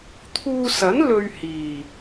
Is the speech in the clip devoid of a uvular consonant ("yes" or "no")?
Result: yes